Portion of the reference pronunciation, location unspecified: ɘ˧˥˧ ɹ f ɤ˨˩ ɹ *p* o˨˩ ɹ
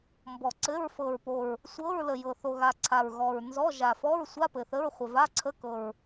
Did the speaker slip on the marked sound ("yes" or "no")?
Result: no